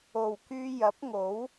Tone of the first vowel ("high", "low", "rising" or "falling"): low